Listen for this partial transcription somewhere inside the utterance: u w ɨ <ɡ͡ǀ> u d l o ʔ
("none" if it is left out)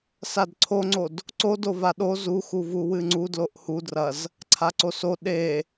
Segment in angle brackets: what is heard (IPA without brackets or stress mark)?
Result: ŋ͡ǀ